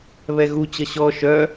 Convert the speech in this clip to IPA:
β ɛ ɣ u t͡ɕ ʌ ɕ ɔ ʃ œ

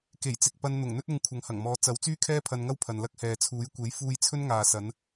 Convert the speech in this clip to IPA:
k e˨˩ j t͡s ɪ˨ k̚ p ɐ˧ n n̪ ʊ˨˩ ŋ n̪ ɵ˥ t̚ ʊ˧ ŋ kʷʰ ɐ˨ ŋ h ɐ˨˩ ŋ m ɔː˨˧ t͡s ɐ˨˥ w t͡s yː˥ kʰ ɛː˥ pʰ ɐ˧ n ŋ ɐ˥ w pʰ ɐ˨ n l ɐ˥ k̚ h ɛː˨ t͡sʰ uː˨˥ j kʷ e˨˥ j f uː˥ j t͡sʰ ɵ˥ n ŋ aː˨ s ɐ˨˧ n

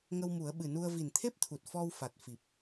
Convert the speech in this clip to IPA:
ŋ ə˧ w m u˨˩˦ ə̯ ɓ ɨ˨˩ n u˧ ə̯ v i˨˩ n t̪ʰ e˦˥ p̚ t̪ʰ u˨˩ t̚ f ɔ˧ w f a˨˩ t̚ f i˨˩ p̚

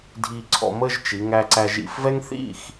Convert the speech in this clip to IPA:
dʱ i˧ ǀʰ ɔ̰˧ m ə˥˧ ʒ t͡ʃ i˩˧ ŋ æ˧ ǀ æ˧ ʒ ḭ˧˩ f v ɛ˥ ŋ θ ḭ˥˧ x

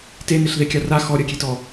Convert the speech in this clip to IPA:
t e n e ɬ ð e kʲ a r a x ɔ ɾʲ ɜ kʲ e t ɔ

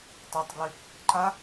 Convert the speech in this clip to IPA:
tˤ a tˤ ɡ l y | ǃ a

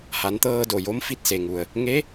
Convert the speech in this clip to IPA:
h a˩˧ n t̪ ɤː˧ d o˧˩ j o˧˥ m f i˧ t̚ s e˩ ŋ u˩ ə̯ | ŋ e˧˥

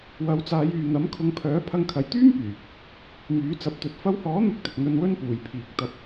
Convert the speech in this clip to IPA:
w ɐ˨˧ w t͡s aː˨˧ j yː˨ n̪ ɐ˨˥ m kʰ ʊ˨˧ ŋ pʰ œː˨˥ pʰ ɐ˧ ŋ kʰ ɐ˨ j t̪ yː˥ m p yː˨˩ | m yː˨˥ t͡s ɐ˨˥ p̚ t̪ ɵ˨˥ t̚ f ɐ˧ w h ɔː˨˥ n̪ ʊ˧ k̚ t̪ ɪ˨ k̚ n̪ ɵ˧ n w ɵ˥ n p uː˨˩ j pʰ iː˨ k̚ t̪ ɐ˧ p̚

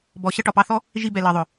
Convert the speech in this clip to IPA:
b ɔ˨ ɕ ʌ˧ ʈ ɒ˨ p ɑ˧ θ ɔ˦ | ʒ i˧ b ɛ˨ l ɜ˨ ðˤ ʊ˨

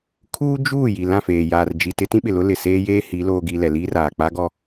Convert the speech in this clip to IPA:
kʰ uː˦ d͡ʒ uː˦˨ j i˨ l ã˦˨ f eː˨ j aː˨ r d͡ʒ i˨ t ɪ˦ t ĩ˦ ɓ ɪ˨ l ʊ˦ l ɪ˨ s eː˦ j eː˦ h i˨˦ l oː˦ ɡ i˦ l ɛ˨ l iː˦ r aː˨ k͡p a˦ ɡ ɔ˦

